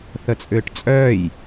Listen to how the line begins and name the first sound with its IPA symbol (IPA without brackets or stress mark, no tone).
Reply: θ